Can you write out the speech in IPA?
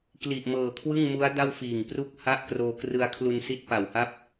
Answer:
kli˨˩ʔmɤː˨˩kʰwɯ˥˩ŋmu˦˥a̯ da˥˩wfiː˨˩ŋ pru˥˩k̚ha˥˩ʔ kroː˧krɯ˧a̯kʰlu˧nsi˦˥t̚ pa˨˩wha˥˩p̚

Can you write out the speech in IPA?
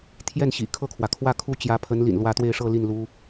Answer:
t̪ʰjɛ˥˩nɕḭ˨˩ kʰɤ˥˩kʰwä˩kʰwä˥˧kʰu˥˩ t͡ɕjä˧˥pʰə˧˥nlḭ˨˩n lwä˧˥ t̪we˥˧ɪ̯ʂɤ˥˧li˥˩n lu˥

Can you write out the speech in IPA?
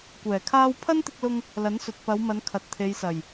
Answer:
kʷɛː˨˩kʰaː˥w pʰɐ˥nt̪ɪ˧k̚lʊ˧ŋ | lɐ˨˥nsɵ˨t̚ pɐ˨˧wmɐ˨˧n kʰɐ˨t̚t̪ʰe˨˧jsɐ˨˩j

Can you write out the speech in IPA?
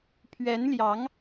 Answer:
pʰɥɛ˧˥n ljɑ˧˥ŋ

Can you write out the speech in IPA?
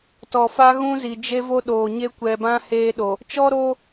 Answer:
tɔ˨fa˦ ɣũ˦zi˨d͡ʒe˦vo˦ ɗoː˨ɲe˦ kʷɛ˨bã˦ heː˦ɗo˨ | t͡ʃɔ˦ɾoː˦

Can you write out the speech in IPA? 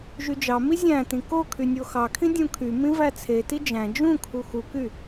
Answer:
ʒyd͡ʒɑmi zʲæ̃ tĩko kʰynʲoxɑkʰĩ dʲũkʰy mĩvæt͡sʰe tid͡ʒæ̃ d͡ʒũkʰu xuky

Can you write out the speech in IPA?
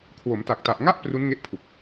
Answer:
kʰwo˩˦mta˨˩k̚ta˨˩ʔŋa˥˩ʔ pru˦˥nŋe˦˥ʔpʰu˨˩k̚

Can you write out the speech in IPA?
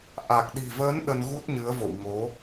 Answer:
ʔa˨˩k̚ɗi̤˨˩vəː˨˦n ɗə˧nɣu˦˥t̚ɲɨ˨˦ə̯vo̰˧˨w ŋo˨˦

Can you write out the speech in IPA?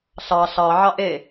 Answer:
ɬɑ ɬɑ ʕɑʔe

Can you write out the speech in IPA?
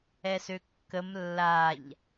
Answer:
ɛsøkːəm lːaʎ

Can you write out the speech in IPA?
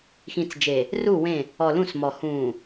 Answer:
xĩ˨t͡sd͡ʒe˨ | ru˦˨wẽ˦˨ | ɔ˨lũ˦˨smɔ˨ hũː˨

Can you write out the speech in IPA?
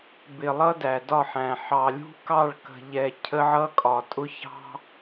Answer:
bɪ˨ lˠʌ˦dæ˨dɒ˦˨ħæ̃˨ ħɑ˨lʲṳ˦kɑ˦˨ɭkə̤˨ ʎɛ˨ cʰə˦ʕʌ˦kʼɒ˨ tʼʊ˦çɑ̤˦

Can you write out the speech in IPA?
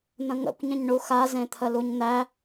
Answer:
n̪ə̃ŋə̰kʷ ɲə̃ɲɳuxa zẽt̪ʰəluɲn̪æ

